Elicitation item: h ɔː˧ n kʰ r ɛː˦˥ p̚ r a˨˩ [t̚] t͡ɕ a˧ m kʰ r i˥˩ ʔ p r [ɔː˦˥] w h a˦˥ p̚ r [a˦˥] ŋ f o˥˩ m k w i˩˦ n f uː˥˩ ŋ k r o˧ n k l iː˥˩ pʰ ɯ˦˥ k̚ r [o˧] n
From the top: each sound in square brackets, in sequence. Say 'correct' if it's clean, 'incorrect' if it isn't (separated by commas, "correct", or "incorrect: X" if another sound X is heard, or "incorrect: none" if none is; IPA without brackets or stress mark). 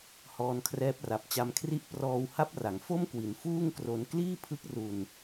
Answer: incorrect: p̚, incorrect: ɔː˧, incorrect: a˩˦, incorrect: u˧